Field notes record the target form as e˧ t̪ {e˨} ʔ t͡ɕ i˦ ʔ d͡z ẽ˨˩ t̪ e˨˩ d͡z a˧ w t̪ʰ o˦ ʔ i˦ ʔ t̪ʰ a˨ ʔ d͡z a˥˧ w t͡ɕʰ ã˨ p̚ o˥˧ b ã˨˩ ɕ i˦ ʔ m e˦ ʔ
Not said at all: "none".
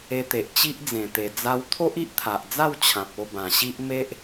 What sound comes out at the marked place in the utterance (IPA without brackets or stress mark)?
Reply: e˨